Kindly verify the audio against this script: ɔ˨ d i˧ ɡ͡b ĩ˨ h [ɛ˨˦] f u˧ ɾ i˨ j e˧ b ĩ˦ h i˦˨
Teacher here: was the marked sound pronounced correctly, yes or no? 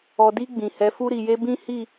yes